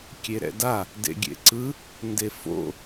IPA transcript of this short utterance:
kʲ e ɾ ɛ̰ d a | d ḛ ɡʲ ḛ ǀ ɯ | n d e f o̰

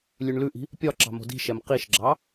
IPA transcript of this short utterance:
lʲ ʉ ɳ l ʉ ʔ i̤ | pʲ ɒ ǁ ɑ̤ m o̤ d i̤ ʃ ɛ m q i ʃ ɡ͡ǁ ɑ

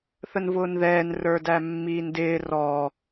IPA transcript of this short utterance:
θ ə n v ʊː n ð ɛː n r ə˞ d æ mː iː n d ɪː r ɔ

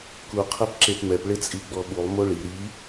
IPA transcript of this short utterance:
k u qʰ ɛ p ǁ e p m ɛ p ɭ ɪ t͡sʼ i ɡ͡b ɔ ɓ u lˠ m o ɭ i ɾ i

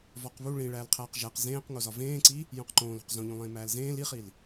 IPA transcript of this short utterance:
v ɒ q β u ɭ ĩ ɭ æː l qʰ æː q ʒ æ q z ẽː q ŋ o z ɒ v ẽː ǀ i | j õ q ǃ õː l o̤ q z õ ʎ ũ lˠ ẽː m æː l z ẽː l i χ i l

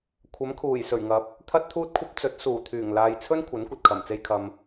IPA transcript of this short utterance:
kʷʰ ɐ˨˥ m kʰ uː˨˩ j s ɵ˨˩ ɥ ŋ ɐ˨˥ p̚ | t̪ʰ ɐ˥ t̚ t̪ʰ uː˥ t̚ kʷʰ ɐ˥ p̚ t͡s ɵ˨˥ t̚ s uː˨˩ t̪ʰ yː˨˩ ŋ l aː˨ j t͡sʰ ɵ˥ n kʷʰ ɐ˨˥ n kʷ ɐ˨ t̚ kʰ ɐ˨˩ m t͡s e˧ j kʰ ɐ˨ m

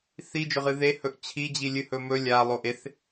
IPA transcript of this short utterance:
θ i d͡ʒ ɵ ʁ ɨ ð e h ɵ ʔ t͡ɕʰ i d͡ʑ i lʲ ɨ h ɵ m ɵ lʲ a lˠ o ʔ e θ

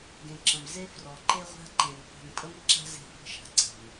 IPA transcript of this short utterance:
ɡ ẽ˨ ǁ ə̃˨ m z e˦ f r ɔ˨ ǃ e˦ ʁʷ a̤˦ ǃ ẽ˨ ŋ qʷ ɛ̤˨ ŋ pʼ ə˦ m ǁ a̤˦ z e̤˦˨ f ə̤˦ ʃ a̤˨ ǀ ɛ̤˨ m

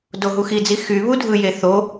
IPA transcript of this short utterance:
d o ɦ u x i d͡z i x y β u dʱ ɯ j e θ o

